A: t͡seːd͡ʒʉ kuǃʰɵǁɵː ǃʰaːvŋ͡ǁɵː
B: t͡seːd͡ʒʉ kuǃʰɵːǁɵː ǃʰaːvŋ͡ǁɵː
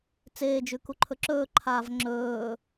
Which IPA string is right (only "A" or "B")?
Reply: A